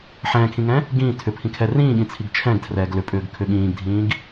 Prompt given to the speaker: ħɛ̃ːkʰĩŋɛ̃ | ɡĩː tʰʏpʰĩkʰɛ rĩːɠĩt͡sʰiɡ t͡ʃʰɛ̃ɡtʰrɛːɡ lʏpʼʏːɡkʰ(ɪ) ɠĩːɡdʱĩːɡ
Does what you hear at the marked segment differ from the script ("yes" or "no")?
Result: yes